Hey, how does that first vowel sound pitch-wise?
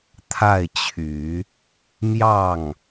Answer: falling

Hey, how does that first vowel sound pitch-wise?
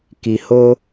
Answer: low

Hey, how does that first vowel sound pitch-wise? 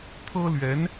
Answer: high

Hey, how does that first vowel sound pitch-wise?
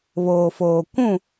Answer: low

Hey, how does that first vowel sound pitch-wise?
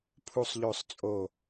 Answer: high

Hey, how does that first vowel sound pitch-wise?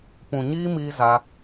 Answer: low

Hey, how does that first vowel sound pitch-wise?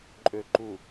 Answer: low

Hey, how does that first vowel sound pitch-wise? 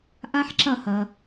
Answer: high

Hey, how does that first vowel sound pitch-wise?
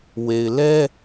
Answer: low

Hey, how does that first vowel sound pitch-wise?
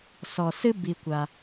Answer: low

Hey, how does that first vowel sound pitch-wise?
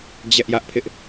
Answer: high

